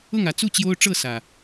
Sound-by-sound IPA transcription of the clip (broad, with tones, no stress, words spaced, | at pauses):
ʊ˥˨ŋä˨˦ t͡su˥˨t͡ɕjo˦ʊ̯ʈ͡ʂɤ˥˨ sä˨˩